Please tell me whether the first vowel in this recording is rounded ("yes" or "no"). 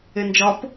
no